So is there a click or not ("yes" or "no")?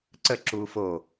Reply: yes